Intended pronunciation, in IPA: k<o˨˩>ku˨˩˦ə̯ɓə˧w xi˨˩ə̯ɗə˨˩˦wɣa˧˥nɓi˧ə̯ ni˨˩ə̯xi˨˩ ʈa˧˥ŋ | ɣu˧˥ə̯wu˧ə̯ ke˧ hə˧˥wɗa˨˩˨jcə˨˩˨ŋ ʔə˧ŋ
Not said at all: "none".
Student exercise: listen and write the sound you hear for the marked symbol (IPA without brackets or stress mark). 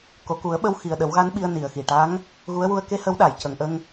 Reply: o˨˩